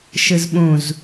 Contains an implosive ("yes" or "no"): yes